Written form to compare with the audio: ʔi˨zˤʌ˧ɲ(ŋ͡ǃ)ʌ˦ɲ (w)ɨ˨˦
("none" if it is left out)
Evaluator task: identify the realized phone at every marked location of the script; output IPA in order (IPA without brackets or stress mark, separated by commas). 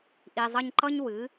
ǃ, w